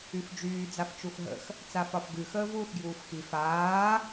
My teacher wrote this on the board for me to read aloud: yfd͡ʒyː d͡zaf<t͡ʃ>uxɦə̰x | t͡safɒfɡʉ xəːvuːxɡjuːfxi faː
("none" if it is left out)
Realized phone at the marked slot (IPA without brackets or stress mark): t͡ʃ